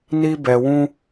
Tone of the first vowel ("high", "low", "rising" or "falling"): high